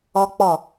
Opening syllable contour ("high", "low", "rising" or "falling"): high